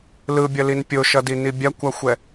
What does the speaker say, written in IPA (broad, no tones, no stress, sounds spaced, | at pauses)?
l ɯ bʲ ʌ l i n pʲ o ʃ ʌ d i n i bʲ a kʷ a xʷ ɛ